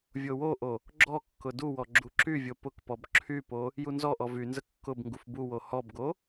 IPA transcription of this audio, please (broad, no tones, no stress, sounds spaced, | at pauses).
vʲ o w o ʔ o | ɡ͡ǁ ɔ kː ʊ d u w ɔ ɡ͡ǁ u ǁ y vʲ o p ʊ k p ɔ b ǁʰ y p o | j u n z ɔ ʔ ɔ v y n z ə kː ʊ b ŋ ɡ u f b u w o h ɔ b ɡ o